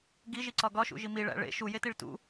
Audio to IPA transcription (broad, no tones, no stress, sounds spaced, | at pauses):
ɡ i ʒ i ǀ ɒ ɡ ɒ ʃ ṵ ʒ i m i ɭ æ̰ ɭ ḛ ʃ u j e t i ɭ t ṵ